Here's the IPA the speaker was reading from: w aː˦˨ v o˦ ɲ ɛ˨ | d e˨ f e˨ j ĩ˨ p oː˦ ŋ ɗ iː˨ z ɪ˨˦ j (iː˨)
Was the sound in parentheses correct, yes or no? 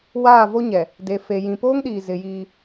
no